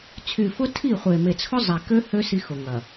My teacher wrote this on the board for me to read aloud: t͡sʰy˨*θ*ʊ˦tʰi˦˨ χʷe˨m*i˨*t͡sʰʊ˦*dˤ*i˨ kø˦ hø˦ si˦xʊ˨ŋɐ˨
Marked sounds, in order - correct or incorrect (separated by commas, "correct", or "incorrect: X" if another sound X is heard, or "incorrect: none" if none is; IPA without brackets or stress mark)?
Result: incorrect: f, incorrect: e˨, incorrect: zˤ